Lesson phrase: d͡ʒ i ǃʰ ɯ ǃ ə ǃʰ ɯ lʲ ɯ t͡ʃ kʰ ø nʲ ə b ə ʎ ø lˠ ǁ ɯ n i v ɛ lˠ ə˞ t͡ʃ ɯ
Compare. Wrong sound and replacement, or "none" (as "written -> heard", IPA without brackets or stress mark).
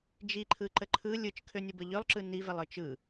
none